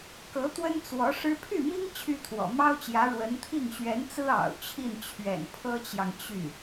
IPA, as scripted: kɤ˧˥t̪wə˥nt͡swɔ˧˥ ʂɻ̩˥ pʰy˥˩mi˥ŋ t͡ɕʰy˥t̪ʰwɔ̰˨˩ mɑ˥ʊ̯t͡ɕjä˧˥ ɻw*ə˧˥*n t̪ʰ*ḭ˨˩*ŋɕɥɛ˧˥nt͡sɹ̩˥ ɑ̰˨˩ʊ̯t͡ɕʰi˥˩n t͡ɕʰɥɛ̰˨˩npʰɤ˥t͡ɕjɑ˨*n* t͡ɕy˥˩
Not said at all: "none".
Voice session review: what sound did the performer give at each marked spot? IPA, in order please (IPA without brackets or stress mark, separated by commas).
ə˧˥, i˥˩, ŋ